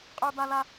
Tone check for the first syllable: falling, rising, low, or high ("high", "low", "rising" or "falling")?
high